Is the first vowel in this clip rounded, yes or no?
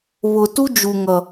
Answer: yes